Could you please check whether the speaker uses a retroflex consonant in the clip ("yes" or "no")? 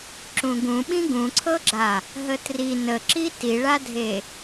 yes